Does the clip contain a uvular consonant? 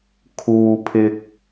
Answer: no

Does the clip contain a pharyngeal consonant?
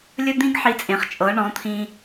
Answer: yes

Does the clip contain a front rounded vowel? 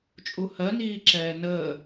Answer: no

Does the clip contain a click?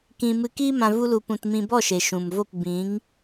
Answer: no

